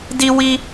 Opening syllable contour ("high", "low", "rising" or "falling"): high